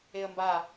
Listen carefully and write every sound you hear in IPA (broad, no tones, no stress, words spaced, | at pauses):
eə̯mba